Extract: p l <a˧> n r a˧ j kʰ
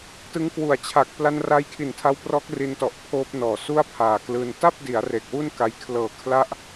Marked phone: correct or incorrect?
correct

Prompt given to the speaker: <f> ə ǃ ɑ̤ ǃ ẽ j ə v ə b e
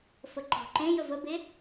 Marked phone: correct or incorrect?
correct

